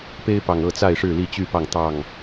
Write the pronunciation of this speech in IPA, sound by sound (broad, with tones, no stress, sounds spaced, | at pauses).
p e˦ ɪ̯ p ɑ˨˩ ŋ ɤ˥˨ t͡s a˥˨ ɪ̯ ʂ ɻ̩˥˨ l i˥˨ t͡ɕ y˥˨ p ɑ˥˨ ŋ t̪ ɑ˥˨ ŋ